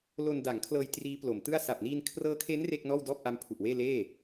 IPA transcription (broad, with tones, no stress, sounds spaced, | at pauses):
l o˧ n d a˩˦ ŋ kʰ l ɤː˧ j t r iː˦˥ p l o˩˦ m t ɯ˥˩ a̯ s a˨˩ p̚ n iː˧ n kʰ r ɤː˦˥ kʰ e˦˥ n r e˥˩ k̚ n ɔː˥˩ w d ɔː˥˩ p̚ ʔ a˦˥ m pʰ u˨˩ ʔ w eː˥˩ l eː˥˩